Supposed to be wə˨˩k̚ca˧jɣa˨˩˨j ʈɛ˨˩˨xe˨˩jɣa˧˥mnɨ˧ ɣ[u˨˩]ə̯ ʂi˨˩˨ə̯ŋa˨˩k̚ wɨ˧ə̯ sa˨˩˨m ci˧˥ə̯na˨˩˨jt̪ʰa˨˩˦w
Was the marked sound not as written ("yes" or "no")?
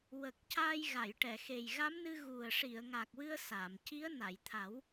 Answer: no